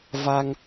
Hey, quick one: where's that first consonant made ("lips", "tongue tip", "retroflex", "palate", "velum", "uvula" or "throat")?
lips